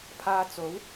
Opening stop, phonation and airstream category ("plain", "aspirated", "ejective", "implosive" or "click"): aspirated